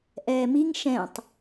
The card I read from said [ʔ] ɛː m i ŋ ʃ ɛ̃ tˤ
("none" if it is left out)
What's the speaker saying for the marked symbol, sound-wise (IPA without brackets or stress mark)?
ʔ